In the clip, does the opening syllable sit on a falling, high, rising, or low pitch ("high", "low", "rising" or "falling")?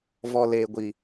low